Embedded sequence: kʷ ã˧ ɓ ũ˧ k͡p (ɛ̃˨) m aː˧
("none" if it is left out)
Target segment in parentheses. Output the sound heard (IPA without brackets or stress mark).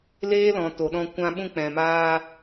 ɛ̃˨